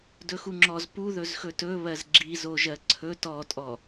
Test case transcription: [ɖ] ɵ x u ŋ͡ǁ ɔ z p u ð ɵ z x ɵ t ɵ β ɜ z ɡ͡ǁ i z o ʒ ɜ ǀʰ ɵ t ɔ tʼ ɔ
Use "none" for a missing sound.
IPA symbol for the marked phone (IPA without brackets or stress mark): d